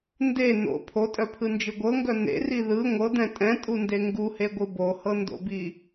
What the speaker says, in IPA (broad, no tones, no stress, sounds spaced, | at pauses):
n d e n o̰ pʰ o tʼ œ pʰ ɯ n d͡ʒ ɯ ɡʷ ɤ ŋ ɡ œ n̪ ḛ r i ð ɯ ŋʷ ɤ d̪ ɛ̃ tʼ ɛ̃ tʼ u n d e ŋ ɡ u h e ɡʷ ɯ b o h ɤ n d o̰ b i